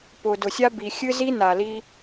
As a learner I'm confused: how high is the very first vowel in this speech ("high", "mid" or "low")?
high